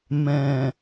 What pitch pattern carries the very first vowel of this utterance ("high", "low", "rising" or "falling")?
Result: low